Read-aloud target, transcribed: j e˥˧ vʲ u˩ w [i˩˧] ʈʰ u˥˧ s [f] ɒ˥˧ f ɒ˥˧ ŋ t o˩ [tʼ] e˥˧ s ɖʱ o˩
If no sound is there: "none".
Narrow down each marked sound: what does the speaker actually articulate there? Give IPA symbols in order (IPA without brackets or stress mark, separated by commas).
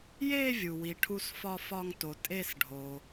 i˩˧, f, tʼ